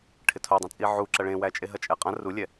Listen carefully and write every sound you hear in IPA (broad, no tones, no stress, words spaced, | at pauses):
ʈʰɪtʰodˤɛ̃ t͡sʼiʕuǁɐ ɭẽwæ t͡ʃʼeɦɐt͡ʃʼɛqʼɐ̃ rulʲɛ